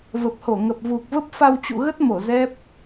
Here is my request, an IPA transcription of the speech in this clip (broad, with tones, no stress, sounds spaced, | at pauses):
v ə˨˩ p̚ h o˧˩ ŋ ə˨˩ p̚ v u˨˩ k̚ v ə˦˥ p̚ f a˧ w t͡ɕ ṵ˧˨ ɣ ə˦˥ t̚ m o˧˩ z ɛ˦˥ p̚